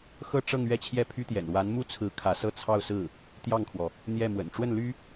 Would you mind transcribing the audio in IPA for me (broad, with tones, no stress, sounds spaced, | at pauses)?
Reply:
x ɤ˥˧ ʈ͡ʂ ɤ˥˧ ŋ ɥ ɛ˥˧ t͡ɕʰ j ɛ˥˩ pʰ y˥ t̪ j ɛ̰˨˩ n w a˧˥ n m u˥ t͡sʰ ɹ̩˧˥ kʰ ä˧˥ s ɤ˥˧ t͡sʰ ɑ˥˧ ʊ̯ s ɹ̩˥˩ | t̪ j ɑ˥˩ ŋ kʰ w ɔ˩ | n̪ j ɛ˥˩ m w ə̰˨˩ n ʈ͡ʂ w ə˥˩ n l y˥